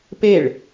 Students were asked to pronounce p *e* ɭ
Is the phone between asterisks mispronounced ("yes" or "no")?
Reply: no